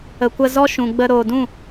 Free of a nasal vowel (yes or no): no